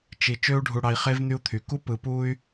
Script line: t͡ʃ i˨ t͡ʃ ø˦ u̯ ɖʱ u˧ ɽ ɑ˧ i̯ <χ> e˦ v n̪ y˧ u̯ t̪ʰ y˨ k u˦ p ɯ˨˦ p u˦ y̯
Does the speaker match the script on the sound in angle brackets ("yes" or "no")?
yes